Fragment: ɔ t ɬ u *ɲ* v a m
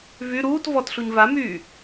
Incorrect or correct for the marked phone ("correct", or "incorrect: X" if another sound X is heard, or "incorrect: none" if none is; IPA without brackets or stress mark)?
correct